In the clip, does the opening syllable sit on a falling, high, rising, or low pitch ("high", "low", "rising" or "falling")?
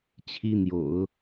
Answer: high